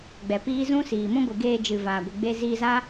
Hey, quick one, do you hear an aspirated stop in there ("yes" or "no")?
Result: no